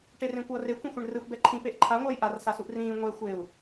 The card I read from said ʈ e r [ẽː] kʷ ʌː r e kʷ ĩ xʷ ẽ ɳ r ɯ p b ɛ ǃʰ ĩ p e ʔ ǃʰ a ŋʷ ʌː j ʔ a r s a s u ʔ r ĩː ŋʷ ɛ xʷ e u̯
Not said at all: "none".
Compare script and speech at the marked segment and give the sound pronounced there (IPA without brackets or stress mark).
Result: ẽ